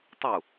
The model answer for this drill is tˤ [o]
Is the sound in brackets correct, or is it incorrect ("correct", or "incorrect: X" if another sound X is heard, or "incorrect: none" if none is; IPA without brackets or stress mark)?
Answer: incorrect: u